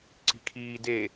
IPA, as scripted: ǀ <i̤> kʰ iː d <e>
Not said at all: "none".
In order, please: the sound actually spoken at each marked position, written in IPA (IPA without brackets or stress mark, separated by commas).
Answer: i̤, e